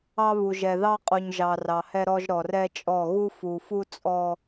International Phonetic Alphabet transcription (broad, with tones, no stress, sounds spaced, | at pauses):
ɑ˦ β u˨ ʒ ɛ˨ ð ɑ˦ qʼ u˨ ɲ ʒ ɑ˨ r ɑ˨ h ɛ˦ ɾ ɔ˦ ʒ ɾ ɔ˨ r ɛ˦ t͡ʃʼ ɔ˦˨ ɣ u˦ f u˨ f u˦ t͡sʼ ɔ˦